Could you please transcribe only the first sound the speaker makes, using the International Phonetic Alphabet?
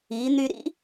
i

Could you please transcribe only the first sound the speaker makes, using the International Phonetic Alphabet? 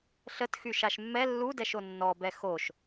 ɬ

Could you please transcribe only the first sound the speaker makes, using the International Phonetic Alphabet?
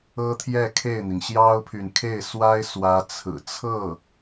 ɤ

